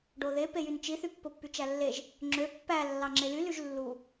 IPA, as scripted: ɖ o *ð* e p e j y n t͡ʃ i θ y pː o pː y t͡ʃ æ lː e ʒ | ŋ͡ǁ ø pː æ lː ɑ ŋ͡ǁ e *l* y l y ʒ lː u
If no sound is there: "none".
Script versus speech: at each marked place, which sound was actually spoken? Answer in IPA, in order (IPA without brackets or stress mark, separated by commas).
ð, l